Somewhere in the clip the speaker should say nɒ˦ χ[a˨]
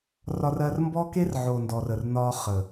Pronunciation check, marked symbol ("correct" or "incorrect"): incorrect